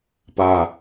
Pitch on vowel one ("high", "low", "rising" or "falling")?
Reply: low